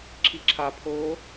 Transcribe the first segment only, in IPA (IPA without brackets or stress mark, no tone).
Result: ǁʰ